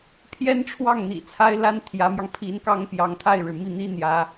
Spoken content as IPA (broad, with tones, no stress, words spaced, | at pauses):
pʰjɛ˥nʈ͡ʂʰwɑ˥˩ŋ n̪ḭ˨˩t͡sʰa˥ɪ̯la˥n t̪ʰjä˧˥mjɑ˧ŋpʰi˧˥nkɑ˥ŋ pjɑ˧˥ŋt̪ʰa˥˩ɪ̯ɻɻ̩˩ mi˥˩n̪i˥n̪jä˧˥